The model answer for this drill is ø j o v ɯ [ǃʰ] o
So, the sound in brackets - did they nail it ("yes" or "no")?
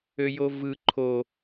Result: yes